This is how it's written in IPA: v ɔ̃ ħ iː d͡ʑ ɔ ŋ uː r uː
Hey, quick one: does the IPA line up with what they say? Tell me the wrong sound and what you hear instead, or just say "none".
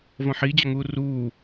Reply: none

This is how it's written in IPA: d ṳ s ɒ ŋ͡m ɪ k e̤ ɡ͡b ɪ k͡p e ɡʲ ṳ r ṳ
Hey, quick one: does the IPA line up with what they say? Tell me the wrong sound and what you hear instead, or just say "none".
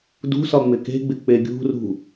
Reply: none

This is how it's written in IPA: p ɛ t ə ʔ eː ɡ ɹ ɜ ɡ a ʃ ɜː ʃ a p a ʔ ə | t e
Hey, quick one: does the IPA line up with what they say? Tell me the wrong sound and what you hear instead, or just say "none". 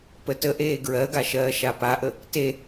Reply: ɛ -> ə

